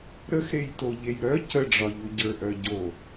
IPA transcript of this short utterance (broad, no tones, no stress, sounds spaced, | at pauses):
ɾ ə x ɾ e j t o ʎ e j ɾ œ c ə ɖ͡ʐ ɒ ʎ u ɟ ə˞ ʔ œ ɟ o